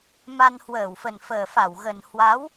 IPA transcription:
ma˧nhwəː˧˩wfə˨˩n fəː˨˩fa˧˩wɣə˨˩n hwa˨˦w

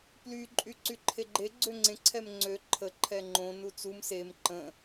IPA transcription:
ply ǃʼyǀyǃʰeɡ͡ǃe ɡ͡ǀøŋ͡ǀẽ ǀʰɛmŋ͡ǀø ǃʰə ǃʰɛŋ͡ǃõ nut͡sum sem ǃə̃

